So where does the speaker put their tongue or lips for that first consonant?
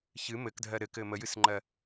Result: palate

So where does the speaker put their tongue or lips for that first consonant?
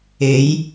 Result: palate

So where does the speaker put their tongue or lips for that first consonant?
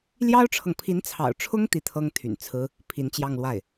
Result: tongue tip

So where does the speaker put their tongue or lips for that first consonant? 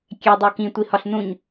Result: velum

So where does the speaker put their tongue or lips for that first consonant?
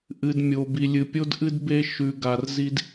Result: throat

